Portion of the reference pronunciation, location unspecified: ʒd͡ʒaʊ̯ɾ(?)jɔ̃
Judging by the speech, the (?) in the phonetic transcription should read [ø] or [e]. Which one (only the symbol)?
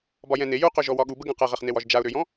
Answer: ø